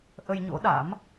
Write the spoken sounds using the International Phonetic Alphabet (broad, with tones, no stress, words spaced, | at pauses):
ʔə˧jɲo̰˧˥ɗa̰˧˥m